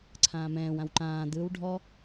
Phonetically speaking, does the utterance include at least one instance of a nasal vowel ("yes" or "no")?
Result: yes